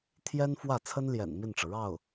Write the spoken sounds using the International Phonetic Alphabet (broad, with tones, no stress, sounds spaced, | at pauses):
t̪ʰ j ɛ˥ n f w ä˥˩ t͡sʰ ə˥ n l j ɛ̰˨˩ n m i˥˩ n ʈ͡ʂ ɤ˩ ɻ ɑ˥˩ ʊ̯